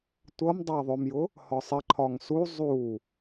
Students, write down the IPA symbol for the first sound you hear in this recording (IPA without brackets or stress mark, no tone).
tʷ